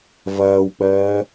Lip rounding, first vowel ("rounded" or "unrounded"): unrounded